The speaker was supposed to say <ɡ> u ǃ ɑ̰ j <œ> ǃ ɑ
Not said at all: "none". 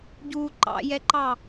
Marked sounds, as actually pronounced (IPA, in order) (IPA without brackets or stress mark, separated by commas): ɟ, ɛ